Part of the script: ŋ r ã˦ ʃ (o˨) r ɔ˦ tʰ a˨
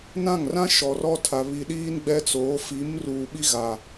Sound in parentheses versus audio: incorrect: ɔ˨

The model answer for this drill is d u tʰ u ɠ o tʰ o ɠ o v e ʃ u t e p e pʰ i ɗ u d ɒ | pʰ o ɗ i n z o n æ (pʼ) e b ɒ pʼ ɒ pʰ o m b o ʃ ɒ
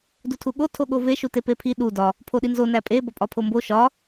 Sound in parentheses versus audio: correct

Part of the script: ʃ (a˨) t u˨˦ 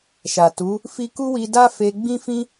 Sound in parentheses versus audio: correct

